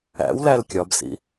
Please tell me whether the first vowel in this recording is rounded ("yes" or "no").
no